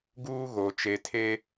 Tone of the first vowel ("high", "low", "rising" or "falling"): high